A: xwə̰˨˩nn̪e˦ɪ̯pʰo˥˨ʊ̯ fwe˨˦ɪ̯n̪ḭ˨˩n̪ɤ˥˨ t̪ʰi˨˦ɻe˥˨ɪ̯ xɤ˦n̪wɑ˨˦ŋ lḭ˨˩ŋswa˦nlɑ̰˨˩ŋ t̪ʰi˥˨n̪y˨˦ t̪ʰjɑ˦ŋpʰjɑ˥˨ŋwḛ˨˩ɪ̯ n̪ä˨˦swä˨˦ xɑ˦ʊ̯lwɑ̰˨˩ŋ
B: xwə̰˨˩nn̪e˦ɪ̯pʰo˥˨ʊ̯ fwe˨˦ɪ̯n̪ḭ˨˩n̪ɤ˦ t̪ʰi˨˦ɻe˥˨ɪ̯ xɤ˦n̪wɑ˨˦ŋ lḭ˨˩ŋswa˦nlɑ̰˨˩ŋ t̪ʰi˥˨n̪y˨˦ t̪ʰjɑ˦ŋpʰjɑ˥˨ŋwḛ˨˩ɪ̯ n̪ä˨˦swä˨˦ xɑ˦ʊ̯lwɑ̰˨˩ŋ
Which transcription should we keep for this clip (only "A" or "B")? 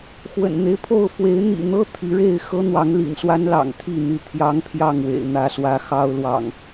B